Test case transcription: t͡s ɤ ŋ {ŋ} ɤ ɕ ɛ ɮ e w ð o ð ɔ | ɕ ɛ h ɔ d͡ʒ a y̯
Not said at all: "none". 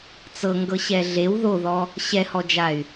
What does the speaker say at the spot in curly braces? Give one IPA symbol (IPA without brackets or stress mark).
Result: ɡ